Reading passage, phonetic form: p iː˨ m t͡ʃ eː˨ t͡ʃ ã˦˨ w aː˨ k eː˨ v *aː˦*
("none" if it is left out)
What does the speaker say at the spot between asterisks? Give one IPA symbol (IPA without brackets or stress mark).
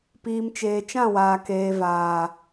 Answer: aː˨